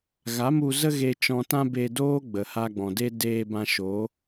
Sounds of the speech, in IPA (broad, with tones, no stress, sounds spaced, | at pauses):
ɣ a˨˦ m u˧ z ə˦ ɣ e˧ t͡ʃ ɔ̃˧ t ã˦ b e˧ d oː˦ ɡ͡b ə˨ h a˧ ɡ͡b ɔ̃˨ d e˦ d eː˧ b ã˧ ʃ o˨˦